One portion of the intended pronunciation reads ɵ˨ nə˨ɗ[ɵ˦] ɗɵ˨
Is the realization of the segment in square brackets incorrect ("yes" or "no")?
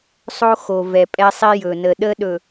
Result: yes